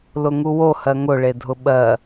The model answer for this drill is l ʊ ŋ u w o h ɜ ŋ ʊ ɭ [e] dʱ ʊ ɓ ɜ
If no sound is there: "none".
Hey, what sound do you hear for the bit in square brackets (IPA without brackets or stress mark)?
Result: e